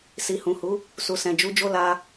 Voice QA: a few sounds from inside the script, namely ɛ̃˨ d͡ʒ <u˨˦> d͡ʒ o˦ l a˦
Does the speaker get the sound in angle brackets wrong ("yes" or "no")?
no